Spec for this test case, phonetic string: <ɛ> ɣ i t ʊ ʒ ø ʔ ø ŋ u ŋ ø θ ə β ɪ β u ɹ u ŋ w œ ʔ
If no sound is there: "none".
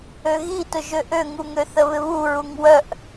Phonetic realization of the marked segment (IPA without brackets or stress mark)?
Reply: ø